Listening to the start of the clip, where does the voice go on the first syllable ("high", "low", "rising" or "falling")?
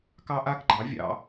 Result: high